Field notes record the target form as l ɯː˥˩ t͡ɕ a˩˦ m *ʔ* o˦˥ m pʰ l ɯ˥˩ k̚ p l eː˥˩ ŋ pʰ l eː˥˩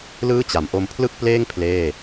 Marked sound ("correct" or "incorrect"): correct